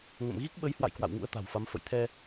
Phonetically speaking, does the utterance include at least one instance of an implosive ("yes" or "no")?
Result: yes